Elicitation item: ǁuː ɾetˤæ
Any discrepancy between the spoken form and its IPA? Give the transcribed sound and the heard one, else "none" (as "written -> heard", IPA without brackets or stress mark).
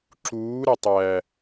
e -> ɛ